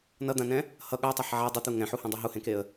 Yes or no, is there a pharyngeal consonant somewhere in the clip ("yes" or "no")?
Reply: yes